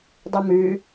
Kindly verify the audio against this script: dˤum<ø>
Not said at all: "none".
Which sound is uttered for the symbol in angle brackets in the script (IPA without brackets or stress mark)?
ʉ